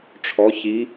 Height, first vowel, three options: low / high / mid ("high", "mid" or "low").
mid